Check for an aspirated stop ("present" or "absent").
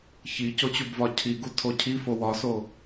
present